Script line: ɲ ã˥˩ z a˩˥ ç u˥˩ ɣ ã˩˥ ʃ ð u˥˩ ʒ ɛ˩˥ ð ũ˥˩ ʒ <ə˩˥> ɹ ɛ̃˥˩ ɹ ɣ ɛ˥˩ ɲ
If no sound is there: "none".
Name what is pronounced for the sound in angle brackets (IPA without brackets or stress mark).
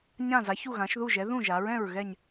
a˩˥